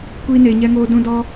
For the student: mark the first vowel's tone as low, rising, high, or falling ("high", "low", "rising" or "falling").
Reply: high